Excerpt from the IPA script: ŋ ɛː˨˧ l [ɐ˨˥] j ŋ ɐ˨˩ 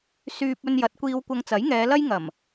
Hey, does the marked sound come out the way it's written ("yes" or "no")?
no